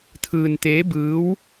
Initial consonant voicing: voiceless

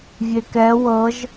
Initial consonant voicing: voiced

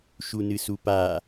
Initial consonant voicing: voiceless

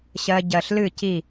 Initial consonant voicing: voiceless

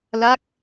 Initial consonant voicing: voiced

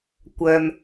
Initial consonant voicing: voiceless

